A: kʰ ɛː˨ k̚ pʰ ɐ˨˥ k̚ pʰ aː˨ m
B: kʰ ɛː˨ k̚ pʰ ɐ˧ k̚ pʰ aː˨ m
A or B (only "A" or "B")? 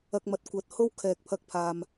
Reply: B